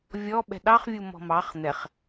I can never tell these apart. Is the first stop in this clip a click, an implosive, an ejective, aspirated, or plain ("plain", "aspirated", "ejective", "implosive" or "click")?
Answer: implosive